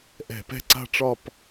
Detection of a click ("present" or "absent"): present